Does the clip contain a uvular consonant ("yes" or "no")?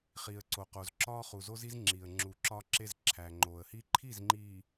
yes